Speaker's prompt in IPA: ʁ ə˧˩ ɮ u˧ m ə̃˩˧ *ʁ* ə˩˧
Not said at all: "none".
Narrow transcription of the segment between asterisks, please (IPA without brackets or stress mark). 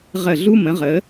ʁ